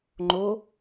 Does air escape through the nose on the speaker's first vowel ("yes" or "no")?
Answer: no